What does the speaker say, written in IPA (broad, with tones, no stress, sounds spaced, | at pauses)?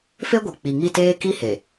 f e˦ ɡʷ i˨ k͡p i˨ ŋ i˦˨ t eː˦ k i˦ h e˨